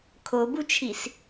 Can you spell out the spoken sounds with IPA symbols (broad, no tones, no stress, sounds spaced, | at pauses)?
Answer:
kʰ o b u t͡ʃʰ i s